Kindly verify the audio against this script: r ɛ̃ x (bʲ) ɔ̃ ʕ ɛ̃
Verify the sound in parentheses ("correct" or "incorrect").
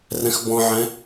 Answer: incorrect